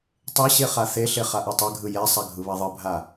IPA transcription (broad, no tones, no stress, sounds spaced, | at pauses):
tˤ e ɕ e χ a θ e ɬ e χ a ʔ e tˤ ɛ ɡʱ ɯ j ɛ sˤ a ɡʱ ɯ β a ðˤ ɯ bʱ a